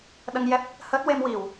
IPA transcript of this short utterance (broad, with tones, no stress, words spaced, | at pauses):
ɗə˧ŋjɛ˦˥p̚ | həː˦˥t̚we˧m wi˨˩˨w